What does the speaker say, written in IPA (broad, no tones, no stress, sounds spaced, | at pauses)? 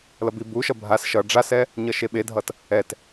l ʌ b i b u ʃ ʌ bʱ a s ʃ ʌ ɖ͡ʐ a s ɛ | ɲ ʌ ʃ e ɓ e dʱ ʌ t | ɛ t